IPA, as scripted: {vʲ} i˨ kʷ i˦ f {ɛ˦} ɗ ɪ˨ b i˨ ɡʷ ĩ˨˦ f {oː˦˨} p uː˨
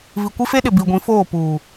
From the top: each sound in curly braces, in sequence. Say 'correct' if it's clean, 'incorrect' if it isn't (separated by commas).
incorrect, incorrect, correct